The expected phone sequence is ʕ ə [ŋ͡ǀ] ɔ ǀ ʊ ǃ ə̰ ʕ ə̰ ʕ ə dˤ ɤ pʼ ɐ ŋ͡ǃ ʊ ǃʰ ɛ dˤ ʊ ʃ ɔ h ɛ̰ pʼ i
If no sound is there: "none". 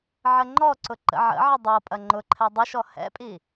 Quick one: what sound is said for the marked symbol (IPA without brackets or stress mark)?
ŋ͡ǃ